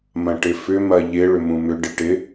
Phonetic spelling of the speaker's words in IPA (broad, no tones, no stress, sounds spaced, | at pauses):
m ɐ̃ ʈ ɪ f ʏ m ɐ ʎ ɪ ɭ ʏ m ũ m ʏ ɖ ɪ ʈ ɪ